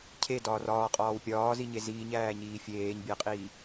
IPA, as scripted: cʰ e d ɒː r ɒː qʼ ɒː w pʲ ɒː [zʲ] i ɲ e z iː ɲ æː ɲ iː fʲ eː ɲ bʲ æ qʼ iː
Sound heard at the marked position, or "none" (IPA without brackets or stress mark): z